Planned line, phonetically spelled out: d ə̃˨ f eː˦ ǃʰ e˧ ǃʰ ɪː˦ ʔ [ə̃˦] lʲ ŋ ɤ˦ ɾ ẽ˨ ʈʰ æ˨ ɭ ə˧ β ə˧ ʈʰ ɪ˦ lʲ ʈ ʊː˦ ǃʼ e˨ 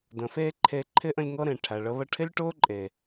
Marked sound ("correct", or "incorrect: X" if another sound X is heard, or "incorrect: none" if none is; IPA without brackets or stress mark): incorrect: ə̃˧